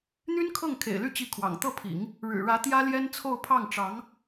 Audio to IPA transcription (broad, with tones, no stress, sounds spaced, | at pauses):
n̪ y˥ n kʰ ɤ˥˩ ŋ kʰ ḛ˨˩ ɪ̯ l y˥˧ t͡ɕ i˥˩ kʰ w ɑ̰˨˩ ŋ t̪ ɤ˥˩ pʰ ḭ˨˩˦ ŋ | ɻ ɻ̩˨˩ ɻ ä˧˥ t̪ j ä˥ l j ɛ˥ n t͡sʰ o˥˧ ʊ̯ pʰ ɑ˥˩ ŋ ʈ͡ʂ ɑ˧˥ ŋ